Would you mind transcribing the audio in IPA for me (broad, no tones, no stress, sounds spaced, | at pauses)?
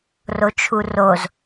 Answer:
r o t͡ʃʰ u r o z